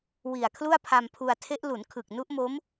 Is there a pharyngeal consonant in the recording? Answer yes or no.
no